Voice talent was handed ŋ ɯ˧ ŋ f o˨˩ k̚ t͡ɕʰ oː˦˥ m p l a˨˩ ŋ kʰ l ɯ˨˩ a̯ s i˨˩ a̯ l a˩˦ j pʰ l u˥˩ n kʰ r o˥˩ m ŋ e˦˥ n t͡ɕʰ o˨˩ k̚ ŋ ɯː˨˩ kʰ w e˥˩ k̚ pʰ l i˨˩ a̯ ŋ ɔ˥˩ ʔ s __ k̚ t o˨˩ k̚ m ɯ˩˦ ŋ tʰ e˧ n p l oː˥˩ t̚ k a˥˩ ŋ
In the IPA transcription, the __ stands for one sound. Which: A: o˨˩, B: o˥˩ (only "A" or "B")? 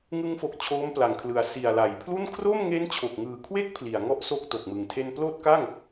B